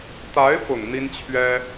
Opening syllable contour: rising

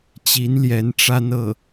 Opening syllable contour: rising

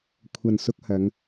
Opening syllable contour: low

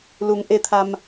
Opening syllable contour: low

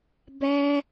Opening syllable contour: high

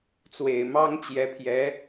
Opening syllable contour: low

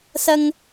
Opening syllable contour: high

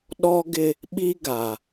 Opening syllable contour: high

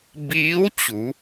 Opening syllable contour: rising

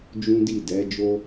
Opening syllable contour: high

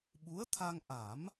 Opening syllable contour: rising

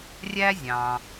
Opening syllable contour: high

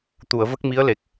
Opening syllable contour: low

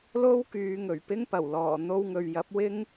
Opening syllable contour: high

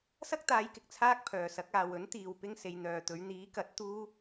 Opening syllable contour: high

